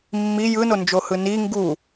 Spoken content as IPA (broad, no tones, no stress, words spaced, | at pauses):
mːi jɯnond͡ʒohɯ ni ŋɡu